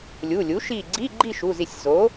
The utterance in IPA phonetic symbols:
lʲu˩˧˩lʲu˩˥ ʃi˧˩ɡ͡ǀi˧˥˧ɡ͡ǃi˥˨ ʃu˩˧˩zi˧˩sʲ zo˩˥

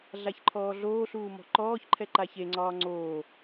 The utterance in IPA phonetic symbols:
ɮaçǃʰɔːɮoːɬuː mɔ̤ǃɔːçǃʰɛ ǃaçeŋ͡ǀɒː ŋ͡ǀoː

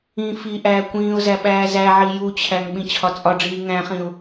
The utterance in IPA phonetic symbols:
ĩ fi ʔæːkʷĩːʊ̯zæ ɓæːzæʕi jut͡ɕʰæŋ ɓĩt͡ɕʰɒt͡sʼɒɖ͡ʐiː ŋæ̃χĩʊ̯

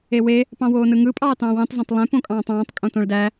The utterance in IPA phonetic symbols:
ewe | pɑ̃woːnɯŋɯ pʼɑːtɑ̃ːwẽtˤ zæ̃tˤlˠẽ põkʼɑ̃ːtˤɑ̃ːtˤ kʼõtõɭdæ

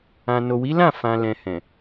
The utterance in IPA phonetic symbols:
ã˨no˨wi˨˦lã˦˨ fã˨lɛ̃˨ hɛ̃˨

